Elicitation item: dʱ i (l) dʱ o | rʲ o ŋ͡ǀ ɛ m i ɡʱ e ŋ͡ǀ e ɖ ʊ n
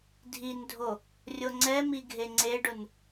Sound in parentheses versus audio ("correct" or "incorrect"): incorrect